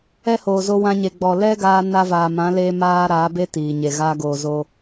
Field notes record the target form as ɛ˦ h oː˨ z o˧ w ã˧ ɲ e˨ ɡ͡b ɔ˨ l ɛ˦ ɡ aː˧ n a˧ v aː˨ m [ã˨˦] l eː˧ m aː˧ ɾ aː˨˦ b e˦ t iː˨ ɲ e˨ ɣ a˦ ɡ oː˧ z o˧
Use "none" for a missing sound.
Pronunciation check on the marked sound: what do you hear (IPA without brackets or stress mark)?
ã˨˦